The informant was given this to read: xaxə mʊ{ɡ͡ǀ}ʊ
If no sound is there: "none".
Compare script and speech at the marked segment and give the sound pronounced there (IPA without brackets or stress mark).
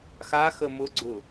ɡ͡ǀ